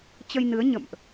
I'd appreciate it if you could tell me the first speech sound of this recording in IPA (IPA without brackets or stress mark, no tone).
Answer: t͡ɕ